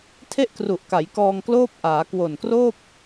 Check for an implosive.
absent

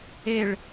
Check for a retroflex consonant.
present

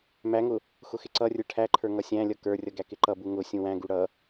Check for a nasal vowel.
present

